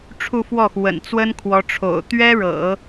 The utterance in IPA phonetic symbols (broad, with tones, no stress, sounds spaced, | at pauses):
ʈ͡ʂʰ u˥˧ f w ɔ˥˩ x w ə̰˨˩ n t͡s w ə˥ n kʰ w ɔ˧˥ ʈ͡ʂʰ o̰˨˩ ʊ̯ t̪ ɥ ɛ˥ ɻ ɤ̰˨˩˦